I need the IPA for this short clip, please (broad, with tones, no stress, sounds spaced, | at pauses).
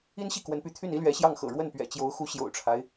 i˥ n ɕ i˥˩ k w ə˧˥ n p y˧˥ t̪ʰ y˥˩ n i˥ l ɥ ɛ˧˥ ɕ j ɑ˥˩ ŋ x ɤ̰˨˩ ɻ w ə˥˩ n p ɥ ɛ̰˨˩ t͡ɕ j o˧˥ ʊ̯ x u˧˥ ɕ j o̰˨˩ ʊ̯ ʈ͡ʂʰ a˦ ɪ̯